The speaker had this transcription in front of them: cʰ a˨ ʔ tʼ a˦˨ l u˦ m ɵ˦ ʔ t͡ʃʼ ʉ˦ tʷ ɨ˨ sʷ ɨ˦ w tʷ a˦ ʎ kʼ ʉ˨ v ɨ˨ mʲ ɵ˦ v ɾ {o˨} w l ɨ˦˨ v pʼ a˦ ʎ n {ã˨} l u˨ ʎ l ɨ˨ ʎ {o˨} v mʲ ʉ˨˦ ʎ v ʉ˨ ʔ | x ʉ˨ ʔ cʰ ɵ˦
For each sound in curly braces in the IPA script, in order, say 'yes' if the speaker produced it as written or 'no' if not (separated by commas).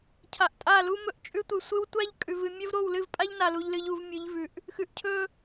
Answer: no, no, no